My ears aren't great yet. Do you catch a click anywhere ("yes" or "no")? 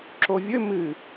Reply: yes